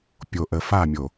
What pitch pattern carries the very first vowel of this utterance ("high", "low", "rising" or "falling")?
low